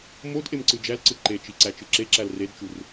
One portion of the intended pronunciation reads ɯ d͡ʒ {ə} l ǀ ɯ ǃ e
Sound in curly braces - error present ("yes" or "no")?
yes